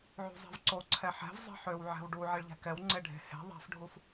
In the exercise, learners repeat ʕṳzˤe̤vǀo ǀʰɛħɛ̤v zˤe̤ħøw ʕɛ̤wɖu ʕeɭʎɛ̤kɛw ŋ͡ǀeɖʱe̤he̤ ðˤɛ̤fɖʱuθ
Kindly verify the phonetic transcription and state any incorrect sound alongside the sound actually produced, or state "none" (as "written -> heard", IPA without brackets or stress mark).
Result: θ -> f